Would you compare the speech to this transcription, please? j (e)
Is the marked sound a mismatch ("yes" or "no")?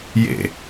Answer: yes